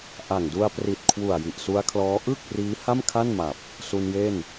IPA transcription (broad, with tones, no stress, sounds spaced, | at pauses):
ʔ a˨˩ ŋ d u˧ a̯ p r i˨˩ t̚ kʰ w u˨˩ a̯ j i˨˩ ʔ s u˦˥ a̯ kʰ l ɔː˦˥ ʔ ɯ˥˩ k̚ r iː˦˥ h a˥˩ m kʰ a˥˩ n m a˨˩ p̚ | s u˧ n j e˥˩ n